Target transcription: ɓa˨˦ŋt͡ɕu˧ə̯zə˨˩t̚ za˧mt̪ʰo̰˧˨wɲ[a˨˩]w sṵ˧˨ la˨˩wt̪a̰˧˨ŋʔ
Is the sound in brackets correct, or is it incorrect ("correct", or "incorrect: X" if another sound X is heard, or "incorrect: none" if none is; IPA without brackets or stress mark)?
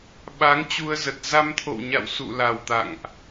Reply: incorrect: a̰˧˨